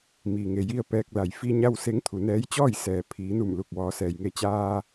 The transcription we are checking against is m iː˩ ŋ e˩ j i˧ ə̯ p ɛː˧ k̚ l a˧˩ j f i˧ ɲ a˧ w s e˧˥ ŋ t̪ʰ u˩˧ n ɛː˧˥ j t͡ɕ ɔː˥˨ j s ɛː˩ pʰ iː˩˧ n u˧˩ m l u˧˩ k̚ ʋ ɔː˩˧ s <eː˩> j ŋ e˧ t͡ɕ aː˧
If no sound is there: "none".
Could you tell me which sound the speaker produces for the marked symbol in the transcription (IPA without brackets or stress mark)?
ɛː˩